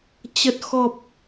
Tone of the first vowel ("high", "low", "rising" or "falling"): low